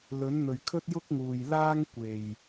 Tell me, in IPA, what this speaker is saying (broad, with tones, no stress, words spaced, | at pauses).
lɵ˨˥nn̪ɵ˨ɥ kʰɵ˥t̚jʊ˥k̚ŋuː˨jlaː˥ŋ kʷe˨˩j